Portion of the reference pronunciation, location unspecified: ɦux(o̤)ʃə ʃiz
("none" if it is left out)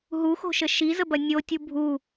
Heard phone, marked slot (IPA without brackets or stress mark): o̤